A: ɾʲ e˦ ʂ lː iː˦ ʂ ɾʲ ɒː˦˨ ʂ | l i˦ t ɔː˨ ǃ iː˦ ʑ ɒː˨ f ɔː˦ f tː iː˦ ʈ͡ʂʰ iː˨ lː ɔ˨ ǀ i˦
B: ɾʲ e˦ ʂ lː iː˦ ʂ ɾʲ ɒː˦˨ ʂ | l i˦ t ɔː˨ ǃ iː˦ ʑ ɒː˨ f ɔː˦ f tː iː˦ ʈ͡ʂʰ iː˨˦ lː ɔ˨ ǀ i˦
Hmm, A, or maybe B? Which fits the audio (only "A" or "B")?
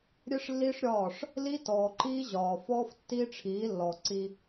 B